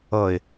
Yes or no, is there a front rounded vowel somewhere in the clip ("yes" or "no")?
no